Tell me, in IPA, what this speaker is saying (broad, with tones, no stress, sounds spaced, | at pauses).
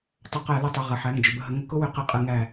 tˤ ʏ˧˩˧ q æ˧˩˧ l ə˧˩˧ tˤ ʏ˩˧˩ ʁ ə˩˧˩ ħ æ˩˧˩ ŋ d͡ʒ ʏ˩˧˩ b ə˧˩ ɦ ə˨˦ ŋ ʊ˧˩˧ k ʊ˦ w ʏ˧˩˧ q ɪ˧˩˧ qʼ ə˧˩˧ ŋ æ˧˩